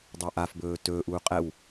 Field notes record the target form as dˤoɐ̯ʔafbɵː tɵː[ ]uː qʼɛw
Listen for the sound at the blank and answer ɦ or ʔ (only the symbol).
ʔ